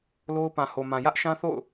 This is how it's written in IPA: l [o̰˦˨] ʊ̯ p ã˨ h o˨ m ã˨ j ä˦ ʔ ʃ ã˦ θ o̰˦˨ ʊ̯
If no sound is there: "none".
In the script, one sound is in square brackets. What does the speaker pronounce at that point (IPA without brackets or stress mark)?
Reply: o˦